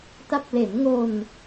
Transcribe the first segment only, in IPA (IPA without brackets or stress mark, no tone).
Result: t